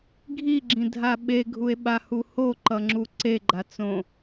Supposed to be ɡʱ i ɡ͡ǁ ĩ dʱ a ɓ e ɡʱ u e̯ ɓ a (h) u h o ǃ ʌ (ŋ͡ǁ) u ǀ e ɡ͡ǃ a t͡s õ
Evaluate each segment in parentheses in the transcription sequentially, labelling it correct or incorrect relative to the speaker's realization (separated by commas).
correct, correct